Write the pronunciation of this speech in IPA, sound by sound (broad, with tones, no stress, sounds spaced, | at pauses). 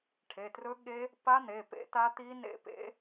ʈʰ e˩˧˩ t r ɵ˦˥ ɠ e˦˥ | p a˦˥ n̪ e˩˧˩ p ḛ˦˥ t a˦˥ t̪ i˦˥ n ḛ˦˥ p ḛ˦˥